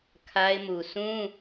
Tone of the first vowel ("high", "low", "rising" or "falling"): high